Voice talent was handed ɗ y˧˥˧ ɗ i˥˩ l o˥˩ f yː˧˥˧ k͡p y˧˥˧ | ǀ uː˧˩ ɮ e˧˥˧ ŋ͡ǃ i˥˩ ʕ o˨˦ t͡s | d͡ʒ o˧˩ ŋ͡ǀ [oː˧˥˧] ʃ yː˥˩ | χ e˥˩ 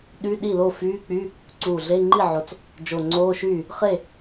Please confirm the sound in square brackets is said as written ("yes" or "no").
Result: yes